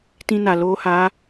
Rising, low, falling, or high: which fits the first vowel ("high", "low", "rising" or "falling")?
high